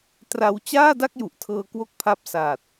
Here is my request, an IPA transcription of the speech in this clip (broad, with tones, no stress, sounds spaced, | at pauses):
t r a˦˥ w t͡ɕ aː˥˩ d a˥˩ k̚ j u˨˩ ʔ tʰ ɤː˧ k w o˥˩ k̚ pʰ a˦˥ p̚ s aː˨˩ t̚